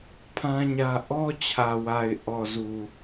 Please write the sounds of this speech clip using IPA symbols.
pʰ ã˦ ɲ ä˦ ʔ ɔ˦ t͡ɕʰ ä˨ w a˨ ɪ̯ ʔ ɔ˨ z u˨

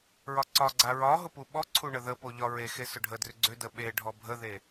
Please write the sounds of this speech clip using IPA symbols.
ɹ ɒ ǀ ɒ ɡ͡ǀ a ɹ ɒ ɦ ʊ p u ɓ ɔ ǀʰ u ɳ ə ð ə p o ʎ ɒ ɹ e x e s ʊ ɖʱ ə d r ʏ ɡ͡ǀ ʏ d ə ɓ e ɖʱ ɔ bʱ ə ð e

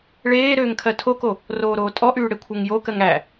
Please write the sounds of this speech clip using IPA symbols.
ɭ eː ɾ øː ŋ kʰ ɜ tʰ o k o | r oː ɾ oː tʼ ɔ ʔ yː ɽ e kʷʰ ɜ ŋ j o k ɜ ŋ æ

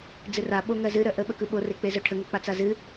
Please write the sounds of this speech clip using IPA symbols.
d͡z ɨ r a ɓ o ŋ ɜ z ɨ ɾ œ ʔ ə ɓ ə k ɯ ɓ o r e k͡p e z œ ʈʰ ə ŋ ə k͡p a t͡s a z ɨ

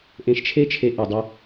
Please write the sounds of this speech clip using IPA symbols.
ʔ ẽ˧ ʃ t͡ʃʰ e˥ t͡ʃʰ e˧ ʔ i˩ dˤ i˧

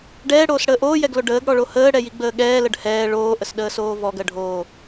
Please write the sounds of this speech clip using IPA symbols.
ɖ ɛː ɽ oː s ɽ əː ʔ oː j ɛ ɡ l o ɖ əː ɡ ɽ ɔ ɭ o h əː ɽ ɛ j i ɡ͡b əː ɠ ɛː l ə ɖ h ɛː ɭ oː ʔ ə s ɗ əː s oː v ɔ ɡ ɜ ɖʱ oː

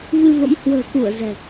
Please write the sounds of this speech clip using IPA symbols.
v ɨ˧ v ə̰˧˥ m h w ə̤ː˨˩ k u˧˩ ə̯ z ɛ̤˨˩

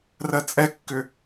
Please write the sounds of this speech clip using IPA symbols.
r ɜ t͡sʼ ɛ kː ʏ

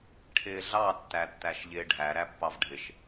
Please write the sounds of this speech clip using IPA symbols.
ʈʰ ɪː ɮ ɑ tː æ tː æ ʃ ʎ ɪː ɖʱ æ ɾ æ pː ɑ v ɖʱ ɪ ʃ

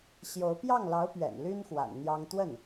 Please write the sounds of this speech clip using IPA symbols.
ɕ j o˧˥ ʊ̯ p j ɑ˥˩ ŋ l ɑ˧˥ ʊ̯ p ɥ ɛ̰˨˩ n l y˥ n x w a̰˨˩ n n̪ j ɑ˥ ŋ t̪ w ə˥˩ n

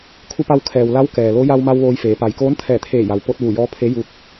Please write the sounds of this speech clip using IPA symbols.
kʰ u˧ p a˧ w kʰ ɛː˩ w l a˧˥ w k ɛː˩ l o˧˥ j a˧ w m a˧ w ʋ oː˧ j f eː˩˧ p a˩ j k oː˧˥ n t̪ʰ ɛː˧˩ t̪ʰ eː˧˩ j a˩ w p o˧ t̚ ʋ u˧˩ j ɔː˧˥ pʰ e˧˥ j u˧ k̚

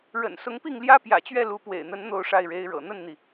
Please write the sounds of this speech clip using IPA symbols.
ɻ ə̰˨˩ n s ʊ˧˥ ŋ p i˥˩ ŋ l j ä˥ p j ä̰˨˩ t͡ɕ ɥ ɛ˥˩ l u˧˥ p w ḛ˨˩ ɪ̯ n̪ ə˧˥ n n̪ o˥˧ ʊ̯ ʂ a˥˩ ɪ̯ ɻ e˧˥ ɪ̯ ɻ ɤ̰˨˩ n̪ ə˥˩ n n̪ i˩

